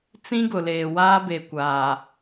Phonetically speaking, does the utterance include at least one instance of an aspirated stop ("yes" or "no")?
no